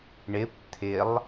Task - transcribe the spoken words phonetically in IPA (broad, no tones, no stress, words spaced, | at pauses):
ɳɪp t̪ʰɪlˠ